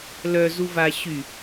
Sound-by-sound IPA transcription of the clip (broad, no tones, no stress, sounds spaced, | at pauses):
l œ z u v a ɕ y